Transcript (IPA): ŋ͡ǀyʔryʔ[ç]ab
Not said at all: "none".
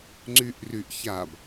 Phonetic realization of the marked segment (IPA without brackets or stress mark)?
ç